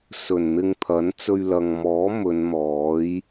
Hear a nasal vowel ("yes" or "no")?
no